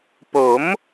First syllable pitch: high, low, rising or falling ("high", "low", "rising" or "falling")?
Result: rising